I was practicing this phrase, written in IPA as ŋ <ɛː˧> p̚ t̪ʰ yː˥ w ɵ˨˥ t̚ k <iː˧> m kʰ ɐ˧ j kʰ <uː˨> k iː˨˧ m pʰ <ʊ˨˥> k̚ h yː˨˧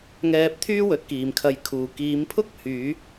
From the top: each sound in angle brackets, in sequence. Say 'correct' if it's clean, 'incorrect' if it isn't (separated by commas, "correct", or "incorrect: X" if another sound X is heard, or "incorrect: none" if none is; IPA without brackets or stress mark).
correct, incorrect: iː˨, correct, incorrect: ʊ˥